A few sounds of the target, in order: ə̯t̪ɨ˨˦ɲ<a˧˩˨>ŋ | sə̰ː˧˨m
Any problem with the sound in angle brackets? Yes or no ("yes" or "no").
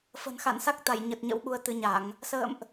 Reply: no